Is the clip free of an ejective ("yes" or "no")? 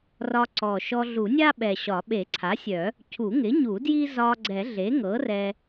yes